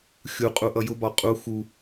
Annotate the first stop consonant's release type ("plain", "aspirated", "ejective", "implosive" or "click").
ejective